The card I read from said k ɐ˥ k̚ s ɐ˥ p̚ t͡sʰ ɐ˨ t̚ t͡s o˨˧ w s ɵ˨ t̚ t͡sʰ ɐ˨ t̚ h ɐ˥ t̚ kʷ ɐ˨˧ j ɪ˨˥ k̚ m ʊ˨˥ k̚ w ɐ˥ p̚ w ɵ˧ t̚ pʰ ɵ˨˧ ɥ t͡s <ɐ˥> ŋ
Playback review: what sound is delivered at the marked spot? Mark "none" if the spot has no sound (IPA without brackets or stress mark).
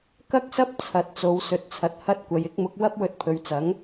ɐ˨˥